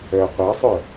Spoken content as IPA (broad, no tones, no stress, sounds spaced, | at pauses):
œ qʷ ɑ sˤ œ